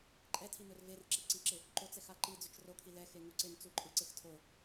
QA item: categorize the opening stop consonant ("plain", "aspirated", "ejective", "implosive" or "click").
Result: click